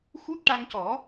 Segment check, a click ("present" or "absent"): absent